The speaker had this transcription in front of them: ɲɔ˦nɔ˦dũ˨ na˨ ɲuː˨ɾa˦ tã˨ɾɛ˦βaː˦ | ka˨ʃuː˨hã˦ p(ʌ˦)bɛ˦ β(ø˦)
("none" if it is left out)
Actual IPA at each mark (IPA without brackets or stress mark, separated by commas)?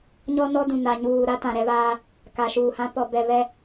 ɔ˦, ɛ˦